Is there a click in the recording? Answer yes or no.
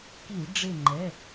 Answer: yes